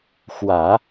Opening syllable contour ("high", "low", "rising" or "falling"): low